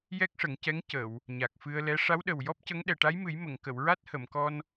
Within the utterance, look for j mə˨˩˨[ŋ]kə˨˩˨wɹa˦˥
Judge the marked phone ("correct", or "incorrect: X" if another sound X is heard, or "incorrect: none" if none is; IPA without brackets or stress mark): correct